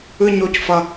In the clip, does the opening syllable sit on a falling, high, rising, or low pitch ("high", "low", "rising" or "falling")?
high